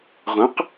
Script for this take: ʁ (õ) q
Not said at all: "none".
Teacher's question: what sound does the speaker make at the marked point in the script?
õ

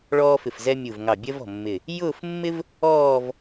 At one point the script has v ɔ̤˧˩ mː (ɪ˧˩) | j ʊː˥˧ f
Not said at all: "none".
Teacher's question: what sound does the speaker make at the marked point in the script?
ɪ˧˩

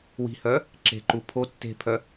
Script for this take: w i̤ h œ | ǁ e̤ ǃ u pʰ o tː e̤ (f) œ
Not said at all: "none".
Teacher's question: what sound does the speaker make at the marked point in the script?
pʰ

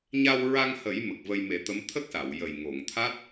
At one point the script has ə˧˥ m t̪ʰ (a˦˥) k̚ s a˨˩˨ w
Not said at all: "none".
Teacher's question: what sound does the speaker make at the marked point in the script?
ə˦˥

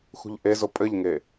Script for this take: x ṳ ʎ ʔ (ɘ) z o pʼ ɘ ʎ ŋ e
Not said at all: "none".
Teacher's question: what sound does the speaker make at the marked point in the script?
e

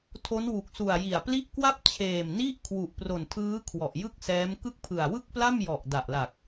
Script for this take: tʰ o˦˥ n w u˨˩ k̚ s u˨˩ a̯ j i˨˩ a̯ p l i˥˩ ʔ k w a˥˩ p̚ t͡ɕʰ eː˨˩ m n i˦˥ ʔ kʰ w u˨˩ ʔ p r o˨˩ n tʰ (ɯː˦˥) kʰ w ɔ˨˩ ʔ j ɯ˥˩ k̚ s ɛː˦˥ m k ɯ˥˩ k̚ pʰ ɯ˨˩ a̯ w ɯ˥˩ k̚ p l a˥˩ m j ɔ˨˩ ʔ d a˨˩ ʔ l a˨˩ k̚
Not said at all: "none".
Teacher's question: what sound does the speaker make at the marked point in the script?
ɯː˦˥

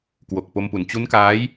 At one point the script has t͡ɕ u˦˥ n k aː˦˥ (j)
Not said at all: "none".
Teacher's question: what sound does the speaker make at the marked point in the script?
j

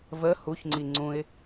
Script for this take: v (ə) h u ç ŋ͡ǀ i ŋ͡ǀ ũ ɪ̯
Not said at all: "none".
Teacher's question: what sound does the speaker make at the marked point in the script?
ə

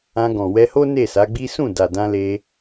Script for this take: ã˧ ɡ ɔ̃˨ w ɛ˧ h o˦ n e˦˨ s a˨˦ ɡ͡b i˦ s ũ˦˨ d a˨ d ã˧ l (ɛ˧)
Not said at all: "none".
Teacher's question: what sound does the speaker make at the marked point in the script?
e˧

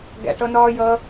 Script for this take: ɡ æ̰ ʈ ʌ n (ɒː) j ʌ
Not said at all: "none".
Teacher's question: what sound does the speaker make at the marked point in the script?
ɒː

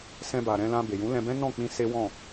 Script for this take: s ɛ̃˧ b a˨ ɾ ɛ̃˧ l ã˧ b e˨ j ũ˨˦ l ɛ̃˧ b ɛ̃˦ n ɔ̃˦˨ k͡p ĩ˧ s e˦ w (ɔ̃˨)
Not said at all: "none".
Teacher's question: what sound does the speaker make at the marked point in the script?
ɔ̃˦˨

